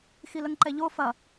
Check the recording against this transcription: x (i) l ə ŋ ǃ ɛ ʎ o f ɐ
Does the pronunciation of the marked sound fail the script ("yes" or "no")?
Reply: no